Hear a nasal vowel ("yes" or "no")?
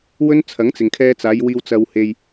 no